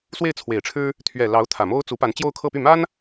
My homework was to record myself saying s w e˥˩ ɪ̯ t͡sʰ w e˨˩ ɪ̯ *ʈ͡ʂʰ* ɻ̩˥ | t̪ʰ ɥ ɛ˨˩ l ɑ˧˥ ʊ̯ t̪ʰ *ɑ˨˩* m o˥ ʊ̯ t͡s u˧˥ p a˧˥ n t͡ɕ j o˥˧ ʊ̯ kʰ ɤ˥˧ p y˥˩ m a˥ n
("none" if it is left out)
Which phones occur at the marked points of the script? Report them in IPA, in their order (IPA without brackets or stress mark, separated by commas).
ʈ͡ʂʰ, ä˨˩